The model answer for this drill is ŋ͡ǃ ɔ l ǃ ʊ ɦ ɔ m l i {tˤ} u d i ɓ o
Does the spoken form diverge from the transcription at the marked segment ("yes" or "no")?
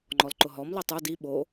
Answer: no